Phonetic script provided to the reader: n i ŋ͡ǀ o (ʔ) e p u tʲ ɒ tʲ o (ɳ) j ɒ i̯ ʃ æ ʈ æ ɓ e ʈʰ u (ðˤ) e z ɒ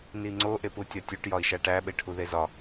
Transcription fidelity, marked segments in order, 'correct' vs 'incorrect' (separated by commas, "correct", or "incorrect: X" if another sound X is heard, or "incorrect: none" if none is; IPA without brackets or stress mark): correct, incorrect: ʈ, incorrect: ð